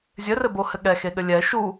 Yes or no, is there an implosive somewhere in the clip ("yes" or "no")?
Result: yes